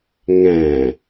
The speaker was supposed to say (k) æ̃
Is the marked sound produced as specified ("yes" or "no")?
no